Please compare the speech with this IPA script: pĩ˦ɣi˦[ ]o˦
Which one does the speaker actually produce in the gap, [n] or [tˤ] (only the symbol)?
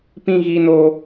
n